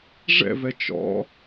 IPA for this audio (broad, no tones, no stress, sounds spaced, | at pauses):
ʐ ɛ̰ v ɛ t͡ʃ ɔ̰